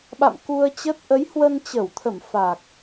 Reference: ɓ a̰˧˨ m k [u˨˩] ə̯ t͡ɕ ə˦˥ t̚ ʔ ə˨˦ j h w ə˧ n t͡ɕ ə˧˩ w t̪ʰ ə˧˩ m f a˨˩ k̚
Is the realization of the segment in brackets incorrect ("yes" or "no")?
yes